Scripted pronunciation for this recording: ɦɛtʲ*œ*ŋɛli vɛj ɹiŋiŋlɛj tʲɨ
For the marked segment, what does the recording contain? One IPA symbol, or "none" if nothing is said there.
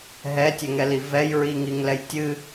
ɛ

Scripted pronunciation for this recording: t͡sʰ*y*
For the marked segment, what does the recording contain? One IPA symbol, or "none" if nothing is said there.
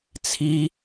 i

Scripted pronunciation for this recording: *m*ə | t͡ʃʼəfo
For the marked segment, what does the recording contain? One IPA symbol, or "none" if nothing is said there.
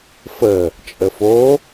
f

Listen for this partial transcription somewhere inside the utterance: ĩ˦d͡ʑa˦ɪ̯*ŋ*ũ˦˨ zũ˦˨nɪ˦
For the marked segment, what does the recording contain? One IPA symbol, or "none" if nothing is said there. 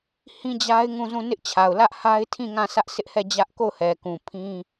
ŋ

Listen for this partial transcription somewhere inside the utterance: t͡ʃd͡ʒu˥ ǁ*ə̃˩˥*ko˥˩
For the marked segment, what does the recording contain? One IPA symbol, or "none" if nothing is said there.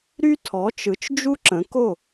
ə̃˩˥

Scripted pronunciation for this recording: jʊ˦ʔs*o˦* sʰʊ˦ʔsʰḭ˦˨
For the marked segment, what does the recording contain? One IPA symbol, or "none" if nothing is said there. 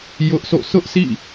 o̰˦˨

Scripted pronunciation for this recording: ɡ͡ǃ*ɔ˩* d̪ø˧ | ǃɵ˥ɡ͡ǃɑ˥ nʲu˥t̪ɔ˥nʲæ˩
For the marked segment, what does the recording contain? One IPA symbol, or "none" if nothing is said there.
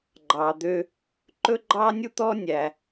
ɑ˩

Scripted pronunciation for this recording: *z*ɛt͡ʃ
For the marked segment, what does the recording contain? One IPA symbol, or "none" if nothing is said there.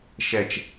ʃ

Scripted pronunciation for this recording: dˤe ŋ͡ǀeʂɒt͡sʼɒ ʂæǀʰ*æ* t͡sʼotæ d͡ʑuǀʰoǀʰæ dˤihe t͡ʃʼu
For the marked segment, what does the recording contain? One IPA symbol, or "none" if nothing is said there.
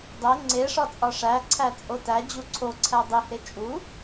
æ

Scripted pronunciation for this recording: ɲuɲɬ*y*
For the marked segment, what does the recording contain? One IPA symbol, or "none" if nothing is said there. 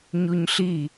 i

